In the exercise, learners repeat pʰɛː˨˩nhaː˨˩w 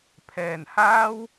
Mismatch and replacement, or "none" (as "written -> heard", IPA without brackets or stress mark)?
aː˨˩ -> aː˥